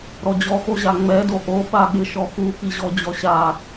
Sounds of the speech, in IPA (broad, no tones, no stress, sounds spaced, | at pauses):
ɾ ɔ d͡ʑ ɔ x o ʑ a ŋ͡m ɛ d o ʔ o ɓ a ɠ ɪ ʃ ɔ x u k i ʑ ɔ d͡ʑ ɔ ɕ a